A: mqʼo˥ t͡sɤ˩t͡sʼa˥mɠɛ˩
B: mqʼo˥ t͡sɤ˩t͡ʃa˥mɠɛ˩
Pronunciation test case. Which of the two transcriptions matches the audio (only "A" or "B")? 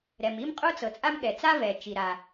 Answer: A